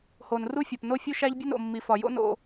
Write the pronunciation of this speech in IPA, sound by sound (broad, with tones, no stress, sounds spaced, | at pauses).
h o˨ n r u˦ fʲ ɒ˨ p n o˦ fʲ u˦ ʃ æ˦ ʎ bʲ e˦ n o̰˨ mː i˨ f ɒ˨ j o̰˦ n o̰˨